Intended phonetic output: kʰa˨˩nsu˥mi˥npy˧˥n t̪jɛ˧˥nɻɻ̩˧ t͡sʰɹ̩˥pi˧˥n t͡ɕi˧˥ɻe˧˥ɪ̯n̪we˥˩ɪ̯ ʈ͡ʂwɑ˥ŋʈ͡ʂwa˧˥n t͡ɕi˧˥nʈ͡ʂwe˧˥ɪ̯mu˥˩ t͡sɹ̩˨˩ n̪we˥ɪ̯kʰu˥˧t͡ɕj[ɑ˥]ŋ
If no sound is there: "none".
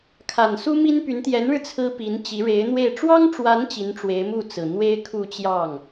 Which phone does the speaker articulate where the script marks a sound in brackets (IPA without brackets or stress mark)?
ɑ˥˩